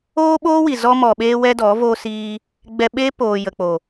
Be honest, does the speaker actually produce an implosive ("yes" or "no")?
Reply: yes